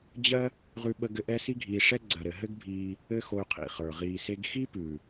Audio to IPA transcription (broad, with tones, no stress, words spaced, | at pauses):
d͡ʑɜ˦ | ʁʉ˧ɓə˧ɡɘ˧ ʔɛ˦si˦ɡʱiː˧ʂɛ˦ ɡ͡ǀɜ˨ɾɘ˨ ɦɘ˦ɡbʱiː˧ | ɘ˦xo˧y̯qʰḭ˨χə˞˨ ʁiː˨se˧ɡxi˦pʉ˨